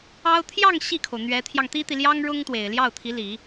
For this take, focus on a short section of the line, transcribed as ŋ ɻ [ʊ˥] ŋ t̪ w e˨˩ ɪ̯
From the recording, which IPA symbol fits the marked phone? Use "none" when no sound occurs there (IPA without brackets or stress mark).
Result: ʊ˥